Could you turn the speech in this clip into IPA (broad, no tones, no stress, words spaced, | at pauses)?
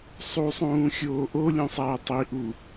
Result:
sˤusˤũː xʲoːʔolʲũ sˤæːtˤiʔu